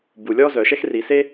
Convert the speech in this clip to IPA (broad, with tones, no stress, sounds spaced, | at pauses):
b u˨ lʲ ɔ˥ z œ˨ ʃ ɛ˥ x r i˨ s e˥